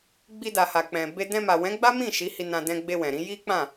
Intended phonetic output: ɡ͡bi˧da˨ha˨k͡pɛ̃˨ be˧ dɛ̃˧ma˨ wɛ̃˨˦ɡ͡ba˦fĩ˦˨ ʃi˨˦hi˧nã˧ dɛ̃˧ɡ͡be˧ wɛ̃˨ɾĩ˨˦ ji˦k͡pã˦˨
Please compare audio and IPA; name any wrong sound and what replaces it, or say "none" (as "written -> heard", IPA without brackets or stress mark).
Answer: f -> m